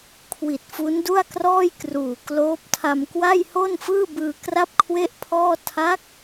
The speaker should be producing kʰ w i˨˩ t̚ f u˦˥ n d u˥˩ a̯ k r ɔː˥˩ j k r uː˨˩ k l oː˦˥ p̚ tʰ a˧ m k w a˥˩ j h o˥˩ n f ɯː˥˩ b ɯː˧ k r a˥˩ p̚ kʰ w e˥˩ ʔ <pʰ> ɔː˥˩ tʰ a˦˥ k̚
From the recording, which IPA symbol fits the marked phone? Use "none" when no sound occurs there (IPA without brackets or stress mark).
pʰ